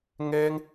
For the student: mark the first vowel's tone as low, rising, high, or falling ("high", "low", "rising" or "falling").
high